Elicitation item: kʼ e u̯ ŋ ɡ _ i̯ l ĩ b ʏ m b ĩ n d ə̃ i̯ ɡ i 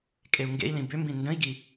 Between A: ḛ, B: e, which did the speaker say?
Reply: A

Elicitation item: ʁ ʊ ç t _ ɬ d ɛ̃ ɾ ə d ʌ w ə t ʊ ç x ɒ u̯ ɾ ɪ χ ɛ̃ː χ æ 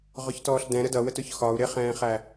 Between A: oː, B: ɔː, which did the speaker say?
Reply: B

